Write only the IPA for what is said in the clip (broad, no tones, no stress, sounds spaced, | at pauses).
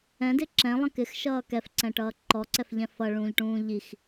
ɛ̃ d ɪ ǁ ɛ̃ lˠ ə̃ k ɪ x ʃ ʌː k ɛ f ǀ ɛ̃ ʈ ʌː ǃ ɔ ǀ ɛ f ʎ ɛ̃ f ʌ ɭ ũː ʎ ʈ ũː ʎ i x